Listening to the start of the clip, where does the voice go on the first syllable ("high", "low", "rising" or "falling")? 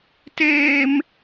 high